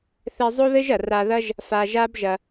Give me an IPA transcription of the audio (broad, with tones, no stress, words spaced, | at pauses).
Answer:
θɛ˧zˤo˦ðɘ˦ʒɐ˨ ra˧ ðɐ˦ʒ | fa˧ʒa˦bʒɐ˧